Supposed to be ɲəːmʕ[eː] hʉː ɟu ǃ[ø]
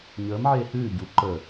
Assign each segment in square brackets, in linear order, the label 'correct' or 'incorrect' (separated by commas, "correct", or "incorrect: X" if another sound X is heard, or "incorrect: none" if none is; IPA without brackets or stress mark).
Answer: correct, incorrect: ə